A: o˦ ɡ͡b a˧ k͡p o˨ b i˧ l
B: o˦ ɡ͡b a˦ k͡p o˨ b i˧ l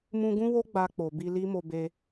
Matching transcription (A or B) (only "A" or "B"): A